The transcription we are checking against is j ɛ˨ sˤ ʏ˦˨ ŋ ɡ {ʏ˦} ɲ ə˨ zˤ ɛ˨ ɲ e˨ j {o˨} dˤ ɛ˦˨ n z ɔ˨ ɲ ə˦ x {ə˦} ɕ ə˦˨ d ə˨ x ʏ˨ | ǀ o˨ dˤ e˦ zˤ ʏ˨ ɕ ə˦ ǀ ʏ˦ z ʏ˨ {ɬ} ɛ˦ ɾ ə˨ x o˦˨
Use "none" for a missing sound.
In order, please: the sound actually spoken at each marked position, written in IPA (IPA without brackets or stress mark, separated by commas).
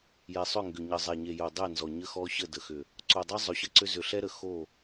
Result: ʏ˨, o˨, ɔ˦, ɬ